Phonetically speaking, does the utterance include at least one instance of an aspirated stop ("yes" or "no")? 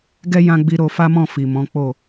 no